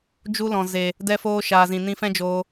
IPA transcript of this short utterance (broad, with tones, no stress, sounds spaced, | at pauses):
d͡ʒ u˧ l ɔ̃˨ z e˨ | d ɛ˧ f oː˧ ʃ aː˨ z ĩ˨ n ĩ˧ f ɛ̃˦ d͡ʒ oː˧